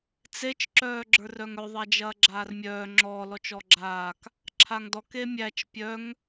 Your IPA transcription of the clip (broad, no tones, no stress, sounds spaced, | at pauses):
t͡s e t͡ʃ ǁ œː ɡ͡ǁ ə˞ r œ ŋ œ ðˤ a d͡ʒ ɐː ɡ͡ǁ aː r mʲ œː ŋ͡ǁ ɔ l ɔ t͡ʃ ɔ ɡ͡ǁ aː k | ǁʰ a ŋ d ɔ k e mʲ æ t͡ʃ pʲ œ ŋ